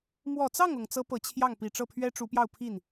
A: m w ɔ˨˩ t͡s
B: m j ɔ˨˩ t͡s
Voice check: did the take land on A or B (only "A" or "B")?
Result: A